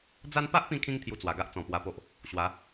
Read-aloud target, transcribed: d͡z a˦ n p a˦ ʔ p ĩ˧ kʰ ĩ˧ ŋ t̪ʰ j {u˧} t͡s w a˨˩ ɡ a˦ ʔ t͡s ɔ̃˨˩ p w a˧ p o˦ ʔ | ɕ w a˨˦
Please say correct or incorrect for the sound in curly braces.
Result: correct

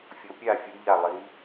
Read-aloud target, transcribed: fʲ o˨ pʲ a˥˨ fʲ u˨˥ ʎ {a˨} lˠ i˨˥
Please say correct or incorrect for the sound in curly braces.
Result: incorrect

